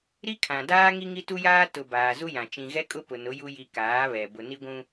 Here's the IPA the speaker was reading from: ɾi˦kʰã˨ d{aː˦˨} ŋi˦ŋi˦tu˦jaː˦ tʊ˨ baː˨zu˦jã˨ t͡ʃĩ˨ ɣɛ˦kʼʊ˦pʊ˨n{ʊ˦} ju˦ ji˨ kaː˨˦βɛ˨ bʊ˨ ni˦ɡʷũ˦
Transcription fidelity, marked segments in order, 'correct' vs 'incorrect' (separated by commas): incorrect, incorrect